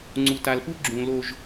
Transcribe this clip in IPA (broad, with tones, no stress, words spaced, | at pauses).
ŋ͡ǀu˨ta˨lpu˦ ɡ͡ǁũ˨ lo˨ʒ